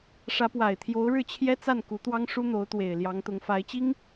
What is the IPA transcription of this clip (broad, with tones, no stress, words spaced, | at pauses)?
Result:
ʂä˧˥pwa˨˩ɪ̯t̪ʰjo˧˥ʊ̯ ɻɻ̩˥˩t͡ɕʰjɛ˥t͡sa˥˩n ku˧˥t̪wɑ˥ŋʂu˥ n̪o˧˥ʊ̯t̪we˨˩ɪ̯ ljɑ˧˥ŋt̪ʊ˧˥ŋfa˧˥ɪ̯t͡ɕi˥ŋ